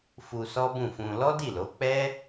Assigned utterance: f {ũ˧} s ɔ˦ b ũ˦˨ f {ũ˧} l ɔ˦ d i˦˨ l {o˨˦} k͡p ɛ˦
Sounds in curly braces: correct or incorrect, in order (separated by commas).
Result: incorrect, correct, correct